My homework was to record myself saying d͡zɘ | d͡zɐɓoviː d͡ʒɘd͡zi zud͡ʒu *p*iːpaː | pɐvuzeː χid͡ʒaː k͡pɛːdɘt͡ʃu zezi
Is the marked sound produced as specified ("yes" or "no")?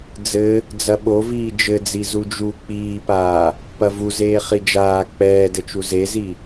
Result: no